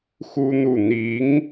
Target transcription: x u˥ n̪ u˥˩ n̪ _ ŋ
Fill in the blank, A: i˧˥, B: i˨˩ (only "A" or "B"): A